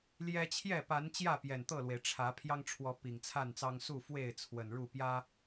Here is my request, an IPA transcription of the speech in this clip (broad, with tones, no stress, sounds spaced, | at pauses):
l j ɛ˦ t͡ɕʰ j ɛ˥˨ p a˨˦ n t͡ɕ j ä˥˨ p j ɛ˨˩ n t̪ ɤ˥˨ l w e˩ ɪ̯ ʈ͡ʂʰ ä˨˦ pʰ j ɑ˦ ŋ ʈ͡ʂʰ w ɔ˨˦ p i˨˩ ŋ t͡sʰ a˥˨ n t͡s ɑ˦ ŋ s u˥˨ f w e˥˨ ɪ̯ t͡sʰ w ə˨˩ n ɻ u˥˨ p j ä˦